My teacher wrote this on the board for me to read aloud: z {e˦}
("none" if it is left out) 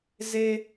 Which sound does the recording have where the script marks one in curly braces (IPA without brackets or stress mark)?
e˦